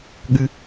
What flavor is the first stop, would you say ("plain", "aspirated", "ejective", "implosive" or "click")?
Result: implosive